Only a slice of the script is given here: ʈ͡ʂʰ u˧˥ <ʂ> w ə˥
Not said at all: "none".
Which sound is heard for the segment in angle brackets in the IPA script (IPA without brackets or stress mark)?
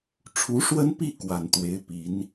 ʂ